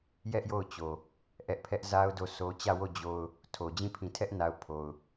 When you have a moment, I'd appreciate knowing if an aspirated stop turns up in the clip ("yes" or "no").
yes